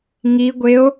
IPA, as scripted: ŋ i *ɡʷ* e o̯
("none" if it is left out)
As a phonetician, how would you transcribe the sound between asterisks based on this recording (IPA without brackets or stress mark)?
ɡʷ